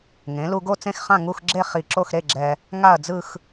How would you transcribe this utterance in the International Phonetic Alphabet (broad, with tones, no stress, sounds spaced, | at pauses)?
ŋ ẽ˩˧ l u˧ ɡ o˥˧ t͡s ẽ˥˧ x χ ã˥˧ ŋ u˥˧ x ɡ͡ǁ e˥˧ χ i˧˩ ǁ o˥˧ x ɾ e˥˧ ɡ͡ǁ ɛ˧ | ŋ a˥˧ ɐ̯ d͡z ɯ˥˧ x